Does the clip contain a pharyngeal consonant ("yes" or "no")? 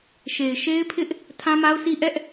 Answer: no